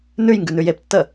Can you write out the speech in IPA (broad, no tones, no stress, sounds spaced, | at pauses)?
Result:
n ʉ j ŋ ɡ ʉ n ʉ j e p tː ə